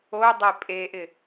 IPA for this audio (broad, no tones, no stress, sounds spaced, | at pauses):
o dˤ e pʼ e ʔ ɪ